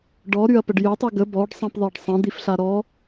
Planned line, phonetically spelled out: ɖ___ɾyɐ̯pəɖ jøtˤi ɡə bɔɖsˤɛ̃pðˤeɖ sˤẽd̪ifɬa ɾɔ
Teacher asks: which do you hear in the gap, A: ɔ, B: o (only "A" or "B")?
A